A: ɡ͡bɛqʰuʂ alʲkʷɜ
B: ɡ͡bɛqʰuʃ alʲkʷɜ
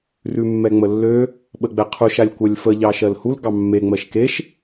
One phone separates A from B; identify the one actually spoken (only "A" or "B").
B